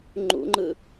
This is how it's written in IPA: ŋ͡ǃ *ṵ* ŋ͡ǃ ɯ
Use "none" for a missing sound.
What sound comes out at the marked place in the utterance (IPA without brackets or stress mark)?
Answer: ṵ